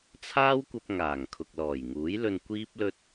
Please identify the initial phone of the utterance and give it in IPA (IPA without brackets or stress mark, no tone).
t͡sʰ